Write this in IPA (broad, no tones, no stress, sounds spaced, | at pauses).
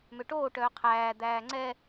m ø ʈ oː ʈ œː qʰ æː d̪ æː ŋ͡ǀ ɛ